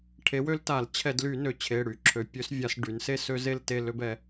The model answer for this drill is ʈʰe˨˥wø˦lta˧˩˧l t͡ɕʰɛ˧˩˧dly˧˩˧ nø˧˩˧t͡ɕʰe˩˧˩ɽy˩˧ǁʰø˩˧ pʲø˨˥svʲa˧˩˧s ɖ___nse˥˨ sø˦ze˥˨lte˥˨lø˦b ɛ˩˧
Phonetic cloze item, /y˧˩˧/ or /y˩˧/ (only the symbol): y˩˧